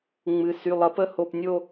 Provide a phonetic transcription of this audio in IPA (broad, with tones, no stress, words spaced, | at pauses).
ŋ͡mɨ˩ sy˩˧˩lˠʌ˩˥pə˥˨ho˧˩p nʲo˥˨